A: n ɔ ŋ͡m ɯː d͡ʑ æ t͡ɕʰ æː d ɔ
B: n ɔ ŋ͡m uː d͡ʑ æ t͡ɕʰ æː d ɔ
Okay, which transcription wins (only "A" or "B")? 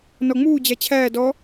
B